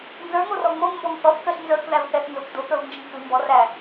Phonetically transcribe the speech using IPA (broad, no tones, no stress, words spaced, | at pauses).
nzə˞ŋorɔ ŋ͡moŋmbɔŋ θɔθ kəɬ nzə˞kðævθɛθnzok dokə˞vnd͡ʒəŋ kʉ mbɔræ